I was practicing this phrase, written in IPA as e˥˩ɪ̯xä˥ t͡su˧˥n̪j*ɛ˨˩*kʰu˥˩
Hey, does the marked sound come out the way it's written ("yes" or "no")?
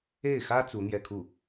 no